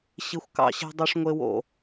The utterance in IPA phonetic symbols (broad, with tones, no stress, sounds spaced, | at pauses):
ɕ i˨ xʷ k ɑ̰˨ ɕ e̤˧ dˤ o˧ ʂ ŋʷ e˧ w o̰˨